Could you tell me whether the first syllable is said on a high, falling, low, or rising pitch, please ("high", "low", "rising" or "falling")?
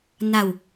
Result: low